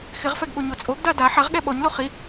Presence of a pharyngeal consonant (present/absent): present